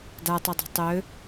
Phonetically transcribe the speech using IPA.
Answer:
datˤødˤɛ̤ tˤø

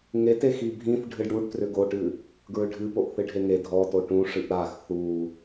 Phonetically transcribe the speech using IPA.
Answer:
ŋetex ibʱĩθ ɖʱɨɖɽuɖ trʏɡoʈɨ | ɡɹʏɖʱɨpoʔ θɨɖʱeŋe dʱɔto ʈũʂɨʔ ɾax θu

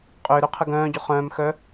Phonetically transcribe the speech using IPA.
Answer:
qʼʏːɾøqʰə ɡœ̃ːɟʊ χœ̃ːmxœ

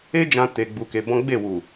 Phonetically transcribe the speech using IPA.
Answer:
e˦d͡ʒã˧ te˧ɡ͡bu˧ke˧bɔ̃˦ ɡ͡be˦˨wu˨

